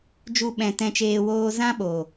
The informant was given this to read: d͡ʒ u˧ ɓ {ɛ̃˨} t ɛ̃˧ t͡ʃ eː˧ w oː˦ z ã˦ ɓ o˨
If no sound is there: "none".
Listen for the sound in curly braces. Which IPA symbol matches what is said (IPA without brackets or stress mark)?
ɛ̃˨